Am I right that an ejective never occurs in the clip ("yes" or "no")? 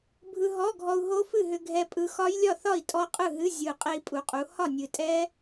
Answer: no